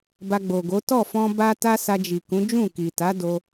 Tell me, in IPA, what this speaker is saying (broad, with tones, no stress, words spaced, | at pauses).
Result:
ba˧ɡ͡bo˨ɡo˨˦ tɔ˦˨fɔ̃˧ ba˦ta˦ sa˧d͡ʒi˨kũ˨˦ d͡ʒũ˦˨ki˨ta˨˦do˧